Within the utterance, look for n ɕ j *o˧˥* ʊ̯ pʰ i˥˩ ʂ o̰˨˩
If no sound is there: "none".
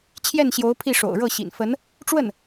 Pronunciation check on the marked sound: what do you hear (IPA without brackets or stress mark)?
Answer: o˧˥